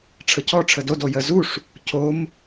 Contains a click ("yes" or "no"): no